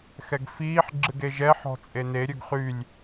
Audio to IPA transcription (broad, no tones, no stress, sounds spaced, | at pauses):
x ɛ ɡ f iː ħ ɡ͡ǁ ɨ ɡ e ʒ ɛ ħ ɔ̤ t͡sʼ e n e ɾʲ ɵ ɡ χ y lʲ